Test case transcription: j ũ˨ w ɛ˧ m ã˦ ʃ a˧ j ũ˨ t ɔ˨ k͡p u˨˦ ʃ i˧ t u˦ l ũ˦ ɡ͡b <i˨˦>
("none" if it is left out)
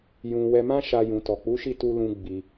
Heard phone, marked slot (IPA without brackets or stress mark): i˧